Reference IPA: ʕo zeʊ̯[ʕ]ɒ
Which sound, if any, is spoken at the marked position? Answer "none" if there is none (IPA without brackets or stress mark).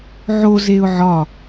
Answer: ʕ